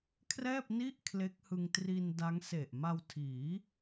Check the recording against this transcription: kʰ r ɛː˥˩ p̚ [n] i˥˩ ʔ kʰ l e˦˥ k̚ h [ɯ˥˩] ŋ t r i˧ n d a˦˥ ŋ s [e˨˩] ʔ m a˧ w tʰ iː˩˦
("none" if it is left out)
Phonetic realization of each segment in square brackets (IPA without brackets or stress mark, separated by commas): n, ɯ˧, e˨˩